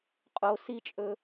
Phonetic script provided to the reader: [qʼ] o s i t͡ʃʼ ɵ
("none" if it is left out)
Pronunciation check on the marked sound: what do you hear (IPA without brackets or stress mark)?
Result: qʼ